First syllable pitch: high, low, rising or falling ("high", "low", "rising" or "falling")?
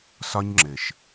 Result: high